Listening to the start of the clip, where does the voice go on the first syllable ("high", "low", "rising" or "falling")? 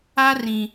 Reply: high